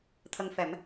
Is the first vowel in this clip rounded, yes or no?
no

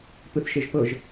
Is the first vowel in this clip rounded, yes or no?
no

